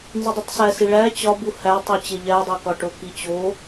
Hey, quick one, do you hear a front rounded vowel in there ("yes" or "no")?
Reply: no